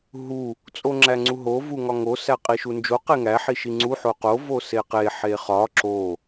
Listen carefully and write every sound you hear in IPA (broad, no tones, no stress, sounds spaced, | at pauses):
ɦ u | t͡sʼ o ŋ͡ǁ æ ŋ͡ǀ u ɦ o v u ŋ ɒ ŋ o s æ qʼ i ʃ u n d͡ʒ o q e ŋ æ ħ i ʃ i ŋ͡ǀ u ħ o q o v o s e q e ħ e χ ɒ ǁ o